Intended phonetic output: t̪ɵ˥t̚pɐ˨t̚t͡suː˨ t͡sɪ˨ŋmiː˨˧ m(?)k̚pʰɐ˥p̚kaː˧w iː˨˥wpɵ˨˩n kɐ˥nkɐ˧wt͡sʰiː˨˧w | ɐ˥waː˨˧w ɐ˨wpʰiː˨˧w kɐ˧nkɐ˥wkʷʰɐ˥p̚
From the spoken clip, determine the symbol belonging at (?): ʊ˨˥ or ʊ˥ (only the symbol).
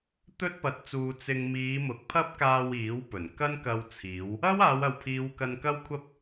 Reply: ʊ˨˥